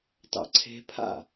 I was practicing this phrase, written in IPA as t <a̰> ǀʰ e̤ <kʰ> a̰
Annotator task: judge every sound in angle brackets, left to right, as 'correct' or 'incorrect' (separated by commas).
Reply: incorrect, incorrect